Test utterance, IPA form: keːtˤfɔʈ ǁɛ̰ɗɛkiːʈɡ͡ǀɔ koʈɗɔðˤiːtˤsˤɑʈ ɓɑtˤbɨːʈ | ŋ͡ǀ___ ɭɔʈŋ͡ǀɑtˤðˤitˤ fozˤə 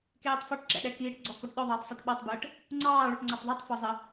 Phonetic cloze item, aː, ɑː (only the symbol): ɑː